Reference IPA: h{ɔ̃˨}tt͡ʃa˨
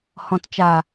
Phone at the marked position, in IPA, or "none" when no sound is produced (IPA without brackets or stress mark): ɔ̃˨